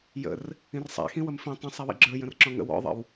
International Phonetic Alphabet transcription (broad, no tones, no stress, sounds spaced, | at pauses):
j ə̰ r | ĩ r sˤ æ̰ x ĩ w ə m f ĩ tˤ ə̃ sˤ i w ḭ ɡ͡ǁ ə˞ j ə̃ r ǁ ɔ̃ ŋ ə̰ w ɔ̰ ðˤ ə̰ w